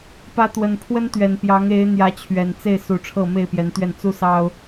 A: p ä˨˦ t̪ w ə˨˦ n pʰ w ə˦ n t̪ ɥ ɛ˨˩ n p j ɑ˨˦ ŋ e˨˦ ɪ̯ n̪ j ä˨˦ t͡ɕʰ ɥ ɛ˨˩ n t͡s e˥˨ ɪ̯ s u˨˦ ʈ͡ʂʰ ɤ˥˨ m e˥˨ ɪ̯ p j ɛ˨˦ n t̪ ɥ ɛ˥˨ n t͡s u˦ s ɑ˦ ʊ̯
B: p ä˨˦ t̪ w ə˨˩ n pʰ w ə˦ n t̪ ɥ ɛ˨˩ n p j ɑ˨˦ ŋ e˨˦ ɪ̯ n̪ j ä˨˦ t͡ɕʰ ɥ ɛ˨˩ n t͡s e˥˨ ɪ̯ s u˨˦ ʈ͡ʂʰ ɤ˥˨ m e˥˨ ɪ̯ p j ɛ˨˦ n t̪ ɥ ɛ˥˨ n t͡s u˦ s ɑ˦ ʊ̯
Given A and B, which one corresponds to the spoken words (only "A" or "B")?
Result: B